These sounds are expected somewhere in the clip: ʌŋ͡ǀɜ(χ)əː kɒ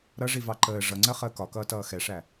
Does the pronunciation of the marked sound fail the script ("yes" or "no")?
no